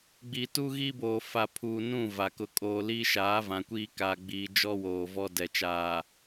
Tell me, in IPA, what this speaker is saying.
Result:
ɡ͡b i˨ t u˦ ɣ i˦ b oː˨ f a˨ pʰ uː˨ n ũ˦˨ v a˨ k ʊ˦ kʼ oː˦ l i˦ ʃ aː˨˦ v ã˨ kʷ iː˦ k a˨ ɡ͡b iː˨ d͡ʒ ɔ˦ w oː˨ v ɔ˦ d ɛ˨ t͡ʃ aː˨

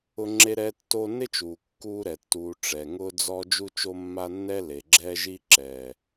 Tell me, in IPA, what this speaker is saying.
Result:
ʊ˦ ŋ͡ǁ e˦ ɾ ɛː˦ tː o˦ n ɪ˦ t͡ʃ uː˨ kː uː˦ ɾ ɛ˨ tː uː˨ ʈ͡ʂ ɛ˨ ŋ ʊː˦ d͡z ɔ˦ d͡ʒ u˦ t͡ʃ o˦ mː a˦ nː ɛ˦ l e˨ ɡ͡ǁ ɛː˦ ʒ i˦ ǁ ɛː˨

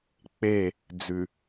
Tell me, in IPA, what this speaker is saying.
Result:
k͡p e˦˨ | d͡z ʉ˨

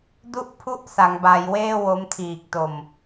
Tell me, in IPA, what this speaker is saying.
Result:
d u˥˩ ʔ pʰ u˥˩ ʔ s a˩˦ ŋ b a˩˦ j w eː˥˩ w o˦˥ m tʰ iː˨˩ k̚ t o˨˩ m

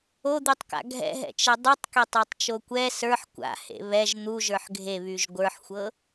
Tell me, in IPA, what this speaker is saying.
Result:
o d̪ y tˤ k a̰ ɡʱ ɛ̰ ɦ ɛ̰ t͡ʃ ɛ dˤ y tˤ k e tˤ a tˤ t͡ʃ o kʷ ɛ s ə˞ ħ kʷ a̰ h ḛ β ɛ ʒ n̪ u ʒ ə˞ ħ ɡʱ e β y ʒ ɡʷ ə˞ ħ xʷ ɤ

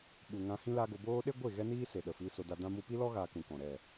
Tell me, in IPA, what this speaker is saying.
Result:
ɓ u˨ ŋ ã˧ h ĩ˦ l a˦ ɡ o˧ b oː˦ ɗ e˦ ɡʷ e˦˨ ɣ ɛ˦ n iː˦ s e˨ ɗ ə˨ f i˧ s o˧ d a˧ d ã˦ m u˧ p i˦ l ɔ˦ ɣ aː˦ k ũ˧ k ɔ̃˨ ɾ ɛ˦˨

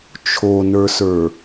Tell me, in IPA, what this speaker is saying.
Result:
t͡ʃʰ o n ə˞ s ə˞

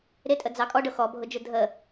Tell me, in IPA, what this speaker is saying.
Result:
ɾ ɪ tʼ ə d͡z ɑ kʼ ɔ ɖ ʊ x ɔ bʱ ʊ d͡ʒ ʊ dʱ ə

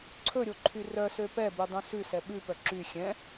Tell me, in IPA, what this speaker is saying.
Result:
ǀʰ ɵ ɾʲ o ǃʰ y r œ s ø p ɛ b ʉ dˤ ũ s ʉ s ɛ ɓ ʉ p œ ǁ y xʲ ɛ̃

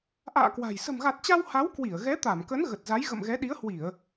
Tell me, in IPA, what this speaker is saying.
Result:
ʔ a̰ː˧˨ k w a̤˨˩ j s ə̤˨˩ m ɣ a˨˩ t̚ t͡ɕ a˧ w h a˨˦ w k w i˧˩ ə̯ ɣ ɛ˨˦ t̪ a˧˩ m k ə˨˦ n ɣ ə˨˩ t̚ z a˨˦ j ɣ ə̰˧˨ m ɣ ɛ˨˦ ɗ i˨˦ ə̯ h w i˧˩˨ ə̯

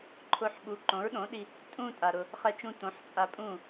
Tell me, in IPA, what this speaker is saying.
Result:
ǃʰ ʊ˧ ħ ɓ u˨˦ ǃ õ˨˦ ɹ ɗ õ˨˦ ɗ i˧ | tʼ ũ˧ tʼ a˧ ɾ ʊ˦ | χ ɛ˦ t͡ʃ ũ˦ t õ˨˦ ħ t͡sʼ a˧ pʼ ũ˦˨

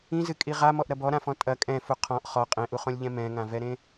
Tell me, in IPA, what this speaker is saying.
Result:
ĩ z ɨ kʼ i ʁ a m ɔ ʔ ɾ ɐ b ɔ ɾ ã f ɔ̃ tʼ ɐ kʼ ɛ̃ f u qʰ ɔ̃ ʔ χ ɔ qʼ ẽ ʔ u χ õ lʲ ʎ ɛ̃ m ɛ̃ ŋ ã v ɛ ɾ ẽ

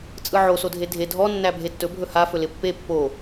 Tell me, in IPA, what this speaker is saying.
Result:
t͡sʼ ɯ ʕ o s o dʱ e dʱ e dʱ ɔ nː æ bʱ e tː ɵ bʱ ɵ h a f ɵ l ɪ pː e pː o

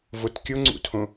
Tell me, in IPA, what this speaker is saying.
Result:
v o t kʲ o ŋ͡ǀ ṵ tʰ õ

